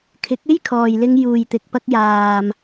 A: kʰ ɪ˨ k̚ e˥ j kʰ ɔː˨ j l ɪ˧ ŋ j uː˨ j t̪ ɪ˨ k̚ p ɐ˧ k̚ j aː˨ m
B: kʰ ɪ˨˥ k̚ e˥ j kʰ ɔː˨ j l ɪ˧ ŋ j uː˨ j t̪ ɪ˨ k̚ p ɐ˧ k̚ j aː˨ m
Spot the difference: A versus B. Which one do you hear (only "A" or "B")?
B